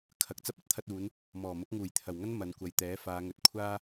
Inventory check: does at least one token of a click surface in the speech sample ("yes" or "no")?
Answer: no